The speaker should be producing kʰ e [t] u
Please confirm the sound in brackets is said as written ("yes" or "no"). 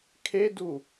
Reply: no